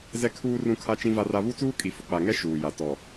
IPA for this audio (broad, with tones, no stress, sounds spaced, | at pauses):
z ɛ˦ kʰ uː˦ r ũ˦ kʰ a˦ t͡ʃ ĩ˦ v a˦ r a˦ β u˦ t͡s uː˦ kʼ i˨ f ʊ˨ k͡p a˨ ŋ ɛ˦ ʃ uː˨ j a˨ t ɔ˨